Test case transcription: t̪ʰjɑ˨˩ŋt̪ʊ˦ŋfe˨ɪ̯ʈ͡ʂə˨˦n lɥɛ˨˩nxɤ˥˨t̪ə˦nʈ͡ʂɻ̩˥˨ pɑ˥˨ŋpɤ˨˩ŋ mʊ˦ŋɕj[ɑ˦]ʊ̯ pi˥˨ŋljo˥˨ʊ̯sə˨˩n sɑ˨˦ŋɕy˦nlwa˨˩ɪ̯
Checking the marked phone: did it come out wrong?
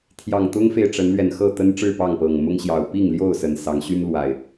yes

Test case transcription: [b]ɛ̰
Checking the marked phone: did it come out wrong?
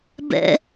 no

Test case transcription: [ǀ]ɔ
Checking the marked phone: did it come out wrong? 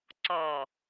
no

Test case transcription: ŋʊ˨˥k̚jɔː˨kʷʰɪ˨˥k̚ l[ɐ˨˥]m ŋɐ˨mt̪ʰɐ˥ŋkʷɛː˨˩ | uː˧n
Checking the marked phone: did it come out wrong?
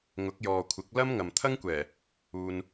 yes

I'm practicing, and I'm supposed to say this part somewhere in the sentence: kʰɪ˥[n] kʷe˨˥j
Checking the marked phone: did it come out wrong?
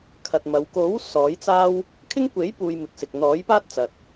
yes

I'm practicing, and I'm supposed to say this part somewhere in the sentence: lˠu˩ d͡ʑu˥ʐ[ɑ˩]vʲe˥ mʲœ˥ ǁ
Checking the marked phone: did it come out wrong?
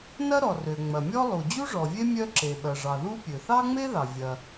yes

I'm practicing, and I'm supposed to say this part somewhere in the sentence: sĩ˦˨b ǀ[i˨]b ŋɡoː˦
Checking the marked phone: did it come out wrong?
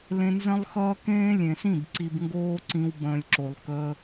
no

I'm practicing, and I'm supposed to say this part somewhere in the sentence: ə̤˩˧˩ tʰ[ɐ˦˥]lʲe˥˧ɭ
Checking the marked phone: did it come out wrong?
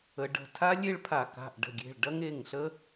yes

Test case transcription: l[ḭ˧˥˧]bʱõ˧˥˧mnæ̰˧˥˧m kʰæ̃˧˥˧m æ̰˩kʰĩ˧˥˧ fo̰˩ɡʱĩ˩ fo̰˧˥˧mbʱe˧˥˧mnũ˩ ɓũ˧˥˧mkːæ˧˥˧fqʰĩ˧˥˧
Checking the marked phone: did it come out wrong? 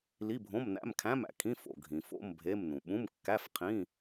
yes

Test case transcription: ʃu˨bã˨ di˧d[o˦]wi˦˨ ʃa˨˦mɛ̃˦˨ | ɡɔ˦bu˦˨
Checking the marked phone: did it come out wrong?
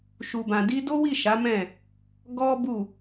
no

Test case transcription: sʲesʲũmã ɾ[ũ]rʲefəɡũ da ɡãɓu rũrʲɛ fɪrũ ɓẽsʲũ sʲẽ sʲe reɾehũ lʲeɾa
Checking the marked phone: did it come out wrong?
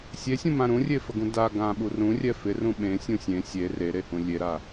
no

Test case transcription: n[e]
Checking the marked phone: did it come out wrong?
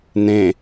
yes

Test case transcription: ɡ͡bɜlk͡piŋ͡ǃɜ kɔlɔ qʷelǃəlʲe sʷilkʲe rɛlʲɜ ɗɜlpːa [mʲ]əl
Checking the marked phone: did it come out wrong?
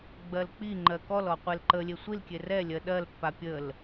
yes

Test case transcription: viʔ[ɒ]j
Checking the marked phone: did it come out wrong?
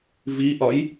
no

